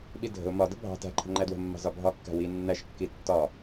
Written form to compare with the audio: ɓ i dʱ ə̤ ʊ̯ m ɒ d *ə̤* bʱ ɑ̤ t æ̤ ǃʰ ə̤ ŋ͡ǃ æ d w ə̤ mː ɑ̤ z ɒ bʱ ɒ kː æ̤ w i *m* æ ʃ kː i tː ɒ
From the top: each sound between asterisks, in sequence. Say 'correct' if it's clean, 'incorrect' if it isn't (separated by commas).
correct, incorrect